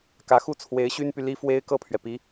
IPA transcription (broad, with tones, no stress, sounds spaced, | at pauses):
k ä˧˥ x u˥ t͡sʰ w e˧˥ ɪ̯ ɕ y˥ n p y˨ l i˥ f w e˥ ɪ̯ k ɤ˥˩ pʰ ɥ ɛ˩ p i˧˥